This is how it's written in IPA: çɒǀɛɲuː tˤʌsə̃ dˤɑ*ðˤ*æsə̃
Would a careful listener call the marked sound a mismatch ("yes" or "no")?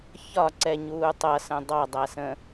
yes